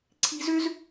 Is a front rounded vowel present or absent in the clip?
present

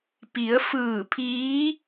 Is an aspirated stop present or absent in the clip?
present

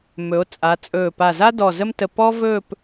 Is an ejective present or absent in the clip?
present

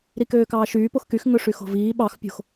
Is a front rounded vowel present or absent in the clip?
present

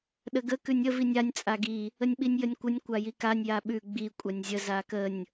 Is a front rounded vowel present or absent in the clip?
absent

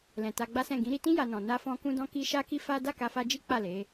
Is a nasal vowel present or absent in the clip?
present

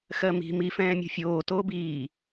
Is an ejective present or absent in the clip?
absent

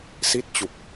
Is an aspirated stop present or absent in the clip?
absent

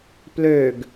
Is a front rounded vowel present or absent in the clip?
present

